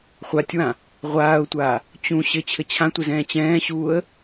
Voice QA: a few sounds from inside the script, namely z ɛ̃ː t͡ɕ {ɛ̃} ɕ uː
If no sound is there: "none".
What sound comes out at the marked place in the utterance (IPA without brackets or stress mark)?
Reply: ɛ̃ː